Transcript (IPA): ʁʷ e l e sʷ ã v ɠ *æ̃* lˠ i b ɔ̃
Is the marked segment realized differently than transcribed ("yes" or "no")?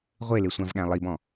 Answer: no